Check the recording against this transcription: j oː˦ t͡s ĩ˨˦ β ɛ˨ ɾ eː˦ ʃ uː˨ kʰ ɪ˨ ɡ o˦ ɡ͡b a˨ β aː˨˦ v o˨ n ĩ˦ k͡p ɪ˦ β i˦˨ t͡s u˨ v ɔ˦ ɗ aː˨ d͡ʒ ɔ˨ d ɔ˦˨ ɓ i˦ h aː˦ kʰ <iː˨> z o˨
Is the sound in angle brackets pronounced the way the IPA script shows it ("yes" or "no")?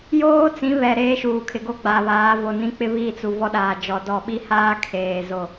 no